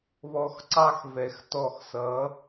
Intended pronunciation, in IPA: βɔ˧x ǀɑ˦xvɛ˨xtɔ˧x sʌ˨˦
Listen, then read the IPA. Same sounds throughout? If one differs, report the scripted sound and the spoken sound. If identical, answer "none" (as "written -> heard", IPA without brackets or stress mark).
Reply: none